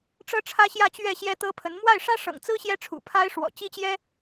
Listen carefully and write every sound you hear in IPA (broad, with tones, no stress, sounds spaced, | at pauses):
ʈ͡ʂ ɤ˥ ʈ͡ʂʰ ä˥ ɕ j ä˥˧ t͡ɕ ɥ ɛ˥˩ ɕ j ɛ˥ t̪ ɤ˥ pʰ ə˧˥ n m w a˥˩ ɪ̯ ʂ ä˥ ʂ ɤ̰˨˩ ŋ t͡s ɹ̩˥ ɕ j ɛ˥ ʈ͡ʂʰ ṵ˨˩ pʰ a˥ ɪ̯ ʂ w ɔ̰˨˩ t͡ɕ i˥ t͡ɕ j ɛ˥